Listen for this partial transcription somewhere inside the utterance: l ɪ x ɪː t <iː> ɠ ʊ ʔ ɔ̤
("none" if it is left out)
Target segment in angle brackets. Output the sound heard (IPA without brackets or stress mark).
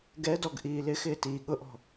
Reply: iː